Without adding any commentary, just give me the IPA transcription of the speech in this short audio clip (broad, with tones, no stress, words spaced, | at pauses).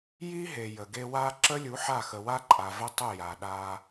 ji˦ ɦe˨ jə˨ɡe˦ wa˦ ǁə˦lʲu˨˦ ħa˦˨xə˨wa˦ǃʼa˨ və˦tˤə˦˨ ja˨ɗa˦